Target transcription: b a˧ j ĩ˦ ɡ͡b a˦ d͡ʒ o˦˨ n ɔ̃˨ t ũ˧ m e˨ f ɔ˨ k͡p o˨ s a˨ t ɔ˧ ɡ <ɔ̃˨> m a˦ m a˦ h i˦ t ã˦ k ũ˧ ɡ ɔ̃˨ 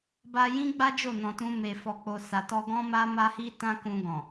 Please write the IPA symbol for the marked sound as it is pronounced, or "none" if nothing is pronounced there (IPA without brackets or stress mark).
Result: ɔ̃˦